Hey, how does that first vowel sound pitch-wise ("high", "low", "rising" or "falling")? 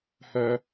high